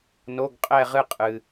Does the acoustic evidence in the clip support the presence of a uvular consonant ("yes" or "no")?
yes